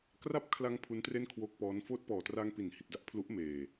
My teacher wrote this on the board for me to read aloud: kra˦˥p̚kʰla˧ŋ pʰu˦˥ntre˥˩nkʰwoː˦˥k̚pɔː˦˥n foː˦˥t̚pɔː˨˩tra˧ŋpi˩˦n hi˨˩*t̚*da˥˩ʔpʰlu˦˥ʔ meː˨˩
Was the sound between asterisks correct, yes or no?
yes